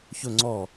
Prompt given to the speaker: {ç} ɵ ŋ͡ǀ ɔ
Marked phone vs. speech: correct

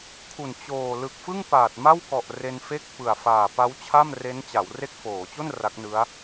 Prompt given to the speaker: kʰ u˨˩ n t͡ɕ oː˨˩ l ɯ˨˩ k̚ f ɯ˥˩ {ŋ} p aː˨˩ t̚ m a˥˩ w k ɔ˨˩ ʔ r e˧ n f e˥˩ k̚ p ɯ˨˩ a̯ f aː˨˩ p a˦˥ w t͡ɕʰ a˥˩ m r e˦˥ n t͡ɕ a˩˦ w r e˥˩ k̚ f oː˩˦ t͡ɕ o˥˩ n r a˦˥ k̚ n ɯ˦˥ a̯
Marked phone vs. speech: correct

